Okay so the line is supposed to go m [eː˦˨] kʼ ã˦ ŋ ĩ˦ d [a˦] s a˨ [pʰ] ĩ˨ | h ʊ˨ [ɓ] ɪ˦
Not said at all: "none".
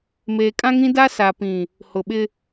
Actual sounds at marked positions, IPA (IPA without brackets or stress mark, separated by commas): eː˨, a˦, p, ɓ